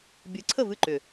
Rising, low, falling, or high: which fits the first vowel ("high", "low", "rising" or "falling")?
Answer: rising